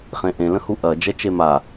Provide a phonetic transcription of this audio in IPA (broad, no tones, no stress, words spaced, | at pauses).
χẽʔẽ lə̃huʔɐ d͡ʒɛt͡ʃema